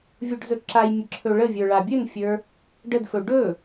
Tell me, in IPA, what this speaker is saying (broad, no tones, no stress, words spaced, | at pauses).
vʲuɖzɵǁajmʲə ǁʰɵɭəvʲə˞ ɭabʲɵnfʲə˞ | ɖədfɵ ɖɵ